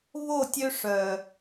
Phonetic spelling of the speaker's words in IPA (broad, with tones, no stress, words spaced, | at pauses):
βo˦˨tʲø˦ʂœ˨